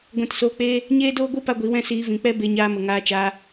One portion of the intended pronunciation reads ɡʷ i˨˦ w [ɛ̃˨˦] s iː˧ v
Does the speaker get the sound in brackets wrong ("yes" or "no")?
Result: yes